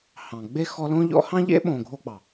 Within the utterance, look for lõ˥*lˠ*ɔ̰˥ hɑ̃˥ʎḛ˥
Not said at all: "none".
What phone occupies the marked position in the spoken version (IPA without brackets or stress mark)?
ʎ